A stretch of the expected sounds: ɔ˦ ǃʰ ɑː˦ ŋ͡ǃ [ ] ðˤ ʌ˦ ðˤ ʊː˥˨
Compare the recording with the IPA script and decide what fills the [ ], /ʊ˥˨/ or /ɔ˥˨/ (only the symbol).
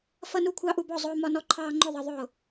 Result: ʊ˥˨